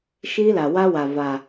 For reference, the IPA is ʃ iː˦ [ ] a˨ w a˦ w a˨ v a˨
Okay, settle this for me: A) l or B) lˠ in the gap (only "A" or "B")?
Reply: A